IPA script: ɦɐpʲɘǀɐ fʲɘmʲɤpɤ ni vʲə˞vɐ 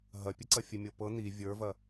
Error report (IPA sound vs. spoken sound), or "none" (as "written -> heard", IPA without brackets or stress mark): none